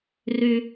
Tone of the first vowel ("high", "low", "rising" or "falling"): high